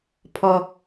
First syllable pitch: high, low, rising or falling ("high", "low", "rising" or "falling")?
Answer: low